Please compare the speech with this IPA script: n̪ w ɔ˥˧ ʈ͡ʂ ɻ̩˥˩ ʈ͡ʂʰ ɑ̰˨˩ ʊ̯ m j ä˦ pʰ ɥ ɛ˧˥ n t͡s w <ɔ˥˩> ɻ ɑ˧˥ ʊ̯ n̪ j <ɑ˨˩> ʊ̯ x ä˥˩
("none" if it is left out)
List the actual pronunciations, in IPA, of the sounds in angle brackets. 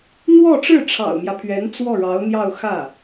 ɔ˥˩, ɑ˥˧

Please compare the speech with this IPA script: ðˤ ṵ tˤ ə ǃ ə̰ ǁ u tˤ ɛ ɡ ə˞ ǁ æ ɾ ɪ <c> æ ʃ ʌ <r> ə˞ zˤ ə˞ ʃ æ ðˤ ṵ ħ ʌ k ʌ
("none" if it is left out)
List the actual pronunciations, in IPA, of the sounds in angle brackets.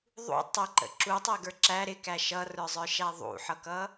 k, r

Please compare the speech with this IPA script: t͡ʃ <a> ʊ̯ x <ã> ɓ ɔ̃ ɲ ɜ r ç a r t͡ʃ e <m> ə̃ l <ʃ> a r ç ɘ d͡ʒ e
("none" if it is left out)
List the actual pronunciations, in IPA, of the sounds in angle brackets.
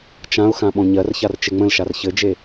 ã, ã, ŋ͡m, ʃ

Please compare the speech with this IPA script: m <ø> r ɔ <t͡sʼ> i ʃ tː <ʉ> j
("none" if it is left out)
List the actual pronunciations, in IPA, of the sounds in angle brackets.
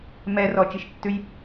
ɛ, t͡ʃ, ʉ

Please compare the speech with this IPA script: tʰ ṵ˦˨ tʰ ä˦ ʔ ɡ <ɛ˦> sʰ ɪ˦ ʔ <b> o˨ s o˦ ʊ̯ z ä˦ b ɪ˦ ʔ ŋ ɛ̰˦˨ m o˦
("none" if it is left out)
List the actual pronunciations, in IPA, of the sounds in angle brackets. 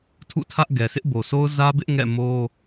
ɛ˨, b

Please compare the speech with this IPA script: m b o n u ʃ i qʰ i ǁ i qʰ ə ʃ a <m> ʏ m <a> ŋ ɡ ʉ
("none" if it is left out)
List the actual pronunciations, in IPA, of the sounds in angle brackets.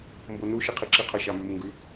m, ə

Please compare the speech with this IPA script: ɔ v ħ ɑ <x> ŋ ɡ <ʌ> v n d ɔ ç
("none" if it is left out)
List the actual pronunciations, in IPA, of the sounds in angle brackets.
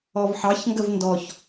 ç, ə

